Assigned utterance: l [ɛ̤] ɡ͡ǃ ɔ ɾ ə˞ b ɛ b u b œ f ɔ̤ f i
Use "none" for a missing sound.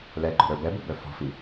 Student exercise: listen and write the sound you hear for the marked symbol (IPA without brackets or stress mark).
ɛ